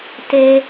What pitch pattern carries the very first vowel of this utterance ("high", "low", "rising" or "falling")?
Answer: high